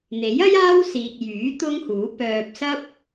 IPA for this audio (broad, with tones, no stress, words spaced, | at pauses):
n̪e˨˥jɐ˥j aː˥wsiː˨k̚ jyː˨˥ t̪ʊ˥ŋhuː˨˥ pœː˧p̚ sɐ˥p̚